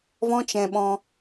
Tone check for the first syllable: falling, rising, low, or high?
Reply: high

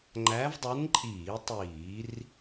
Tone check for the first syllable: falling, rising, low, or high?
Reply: rising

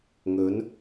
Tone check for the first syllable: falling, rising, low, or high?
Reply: rising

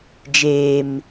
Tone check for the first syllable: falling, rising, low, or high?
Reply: low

